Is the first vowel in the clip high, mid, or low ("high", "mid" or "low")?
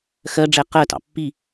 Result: mid